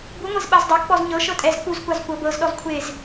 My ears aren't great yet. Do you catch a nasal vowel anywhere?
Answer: no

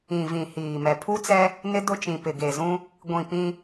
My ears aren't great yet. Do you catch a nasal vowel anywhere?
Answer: yes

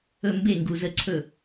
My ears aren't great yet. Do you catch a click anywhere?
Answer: yes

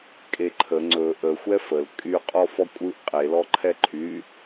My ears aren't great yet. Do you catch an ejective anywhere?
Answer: yes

